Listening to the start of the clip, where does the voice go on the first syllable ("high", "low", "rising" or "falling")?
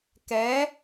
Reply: rising